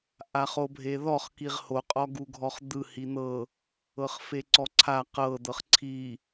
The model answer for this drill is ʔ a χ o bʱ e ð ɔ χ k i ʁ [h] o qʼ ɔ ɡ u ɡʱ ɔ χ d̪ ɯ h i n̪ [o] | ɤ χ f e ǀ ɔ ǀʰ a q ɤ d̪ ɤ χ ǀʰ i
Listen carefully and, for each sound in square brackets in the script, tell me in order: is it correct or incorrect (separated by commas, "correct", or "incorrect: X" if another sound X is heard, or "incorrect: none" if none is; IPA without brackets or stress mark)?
correct, incorrect: ɤ